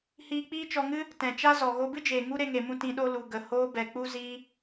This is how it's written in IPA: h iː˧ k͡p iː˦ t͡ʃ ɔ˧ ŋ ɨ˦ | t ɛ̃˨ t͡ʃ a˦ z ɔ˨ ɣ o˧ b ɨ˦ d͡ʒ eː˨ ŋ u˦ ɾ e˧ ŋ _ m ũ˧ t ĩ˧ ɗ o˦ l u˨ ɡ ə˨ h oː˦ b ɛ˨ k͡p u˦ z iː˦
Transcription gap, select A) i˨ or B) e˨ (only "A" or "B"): B